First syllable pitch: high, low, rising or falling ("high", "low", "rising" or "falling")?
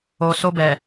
low